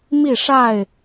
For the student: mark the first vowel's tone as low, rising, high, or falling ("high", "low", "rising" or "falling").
falling